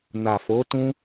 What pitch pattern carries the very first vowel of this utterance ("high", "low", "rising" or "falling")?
low